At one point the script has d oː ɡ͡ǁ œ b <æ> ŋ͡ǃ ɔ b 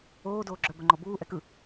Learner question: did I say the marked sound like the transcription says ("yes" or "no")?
no